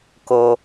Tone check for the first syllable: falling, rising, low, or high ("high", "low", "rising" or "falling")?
low